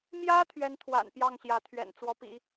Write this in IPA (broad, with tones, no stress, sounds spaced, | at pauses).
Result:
m j ä˥ t̪ʰ ɥ ɛ˧˥ n t̪ʰ w a̰˨˩ n p j ɑ˥˩ ŋ ɕ j ä˧˥ t̪ʰ ɥ ɛ̰˨˩ n t͡s w ɔ˧˥ p ḭ˨˩˦